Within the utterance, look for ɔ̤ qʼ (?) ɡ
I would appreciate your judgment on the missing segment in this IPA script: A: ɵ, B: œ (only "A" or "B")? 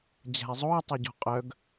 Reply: B